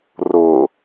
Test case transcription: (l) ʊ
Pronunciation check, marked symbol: incorrect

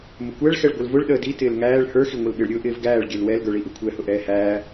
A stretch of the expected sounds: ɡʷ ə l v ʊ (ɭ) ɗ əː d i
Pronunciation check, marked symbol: correct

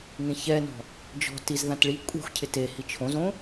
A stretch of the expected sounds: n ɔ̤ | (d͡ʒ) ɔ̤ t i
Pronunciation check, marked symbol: correct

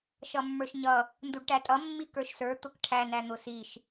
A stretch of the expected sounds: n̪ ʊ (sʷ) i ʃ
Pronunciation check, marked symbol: incorrect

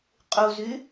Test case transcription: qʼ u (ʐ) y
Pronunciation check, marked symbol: incorrect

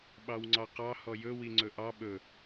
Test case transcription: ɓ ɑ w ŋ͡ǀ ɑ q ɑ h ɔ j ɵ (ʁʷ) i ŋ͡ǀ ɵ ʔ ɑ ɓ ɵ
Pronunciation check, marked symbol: incorrect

